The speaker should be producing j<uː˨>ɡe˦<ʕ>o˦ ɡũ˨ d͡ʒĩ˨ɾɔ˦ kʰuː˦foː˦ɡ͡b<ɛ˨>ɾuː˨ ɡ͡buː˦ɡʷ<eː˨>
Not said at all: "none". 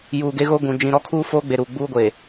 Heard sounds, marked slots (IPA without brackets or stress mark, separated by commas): uː˨, ɣ, e˨, eː˨